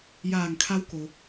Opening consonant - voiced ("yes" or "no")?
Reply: yes